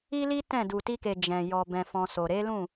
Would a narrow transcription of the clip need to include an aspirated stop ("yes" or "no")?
no